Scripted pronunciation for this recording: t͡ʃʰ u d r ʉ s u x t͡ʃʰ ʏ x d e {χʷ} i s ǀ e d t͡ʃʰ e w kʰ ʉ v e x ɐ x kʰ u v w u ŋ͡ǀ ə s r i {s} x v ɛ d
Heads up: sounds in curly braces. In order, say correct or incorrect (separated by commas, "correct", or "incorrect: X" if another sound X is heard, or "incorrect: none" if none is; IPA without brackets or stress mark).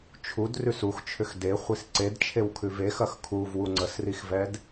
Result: correct, incorrect: none